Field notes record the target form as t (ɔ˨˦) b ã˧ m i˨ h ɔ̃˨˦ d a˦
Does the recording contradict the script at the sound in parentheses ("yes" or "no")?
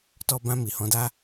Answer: yes